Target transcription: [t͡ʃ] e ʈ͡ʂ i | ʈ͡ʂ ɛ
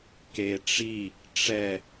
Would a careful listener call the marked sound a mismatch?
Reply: yes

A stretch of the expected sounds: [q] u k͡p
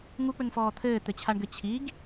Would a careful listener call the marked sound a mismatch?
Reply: yes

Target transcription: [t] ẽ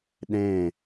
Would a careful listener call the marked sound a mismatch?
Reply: yes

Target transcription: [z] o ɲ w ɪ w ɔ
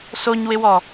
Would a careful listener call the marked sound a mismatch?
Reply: yes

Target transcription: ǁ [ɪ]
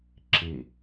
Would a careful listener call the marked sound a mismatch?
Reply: no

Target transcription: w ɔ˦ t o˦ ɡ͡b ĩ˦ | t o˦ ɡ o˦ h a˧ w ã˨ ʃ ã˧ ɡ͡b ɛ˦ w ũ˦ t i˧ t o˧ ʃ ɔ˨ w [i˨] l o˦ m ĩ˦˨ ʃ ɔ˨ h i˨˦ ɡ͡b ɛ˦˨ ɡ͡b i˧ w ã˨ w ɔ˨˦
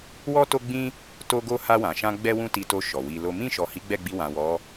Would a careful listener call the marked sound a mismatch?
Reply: yes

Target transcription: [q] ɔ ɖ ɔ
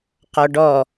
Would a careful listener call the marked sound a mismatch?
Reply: no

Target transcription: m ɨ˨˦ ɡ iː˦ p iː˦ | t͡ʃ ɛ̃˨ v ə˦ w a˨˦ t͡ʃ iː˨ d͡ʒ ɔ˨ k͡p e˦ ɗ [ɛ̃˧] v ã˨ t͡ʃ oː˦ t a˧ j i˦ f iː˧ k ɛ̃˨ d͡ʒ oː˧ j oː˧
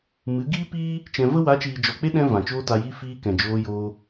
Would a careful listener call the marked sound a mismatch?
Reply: no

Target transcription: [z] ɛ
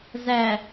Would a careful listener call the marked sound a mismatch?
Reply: no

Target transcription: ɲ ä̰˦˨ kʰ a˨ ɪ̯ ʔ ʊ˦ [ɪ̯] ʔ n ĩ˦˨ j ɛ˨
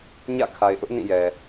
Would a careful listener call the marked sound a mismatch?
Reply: yes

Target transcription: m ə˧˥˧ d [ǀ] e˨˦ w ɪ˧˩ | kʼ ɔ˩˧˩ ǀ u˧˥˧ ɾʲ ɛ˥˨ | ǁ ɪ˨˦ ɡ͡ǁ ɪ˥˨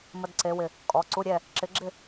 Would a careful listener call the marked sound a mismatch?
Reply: no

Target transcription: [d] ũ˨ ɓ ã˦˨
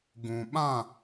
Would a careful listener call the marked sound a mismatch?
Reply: yes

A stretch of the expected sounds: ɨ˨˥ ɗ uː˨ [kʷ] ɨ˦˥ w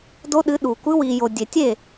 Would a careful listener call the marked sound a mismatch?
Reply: no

